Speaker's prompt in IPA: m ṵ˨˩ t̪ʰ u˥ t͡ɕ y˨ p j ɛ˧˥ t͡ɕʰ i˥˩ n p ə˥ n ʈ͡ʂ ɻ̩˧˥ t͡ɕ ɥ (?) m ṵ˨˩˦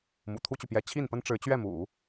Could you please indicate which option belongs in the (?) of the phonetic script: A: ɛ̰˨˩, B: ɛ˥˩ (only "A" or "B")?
B